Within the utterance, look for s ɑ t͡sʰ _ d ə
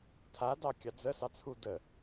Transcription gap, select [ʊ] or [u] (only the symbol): u